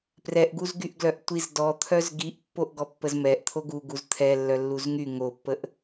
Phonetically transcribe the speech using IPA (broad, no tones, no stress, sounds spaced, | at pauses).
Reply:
p r ɛ ʔ ɡ u z ɡ y ʔ ɡ l œ ʔ tʷ i z d ɔ t̪ʰ œ z ɡ i ʔ pː o ʔ ɡ ɔ pː ə z m ɛ ʔ t̪ʰ o ɡ u ɡ u z t̪ʰ ɛ lː œ lː u z ŋ y ŋ o pː ə ʔ